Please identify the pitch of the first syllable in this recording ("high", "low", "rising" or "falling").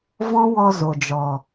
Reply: high